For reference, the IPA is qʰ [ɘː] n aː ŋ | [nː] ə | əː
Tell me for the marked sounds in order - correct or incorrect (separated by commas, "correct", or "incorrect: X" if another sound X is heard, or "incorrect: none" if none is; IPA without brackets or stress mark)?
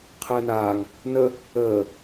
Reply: correct, incorrect: n